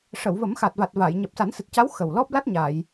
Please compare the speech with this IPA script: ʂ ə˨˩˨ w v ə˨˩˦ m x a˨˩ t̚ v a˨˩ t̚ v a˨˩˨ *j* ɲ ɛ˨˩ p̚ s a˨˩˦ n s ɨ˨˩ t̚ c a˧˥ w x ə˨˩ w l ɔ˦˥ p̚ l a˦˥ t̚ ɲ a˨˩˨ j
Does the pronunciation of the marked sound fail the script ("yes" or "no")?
no